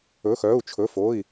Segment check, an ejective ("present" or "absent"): absent